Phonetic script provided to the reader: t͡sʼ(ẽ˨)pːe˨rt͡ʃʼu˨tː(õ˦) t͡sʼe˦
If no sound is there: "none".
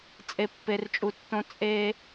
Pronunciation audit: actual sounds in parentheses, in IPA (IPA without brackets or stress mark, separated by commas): e˨, õ˦